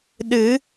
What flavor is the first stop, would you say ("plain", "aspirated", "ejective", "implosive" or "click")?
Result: implosive